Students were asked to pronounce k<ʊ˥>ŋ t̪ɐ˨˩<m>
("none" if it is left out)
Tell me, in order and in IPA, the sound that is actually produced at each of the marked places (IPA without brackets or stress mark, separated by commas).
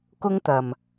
ʊ˥, m